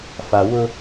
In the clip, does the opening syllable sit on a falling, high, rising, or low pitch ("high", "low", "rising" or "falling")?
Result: low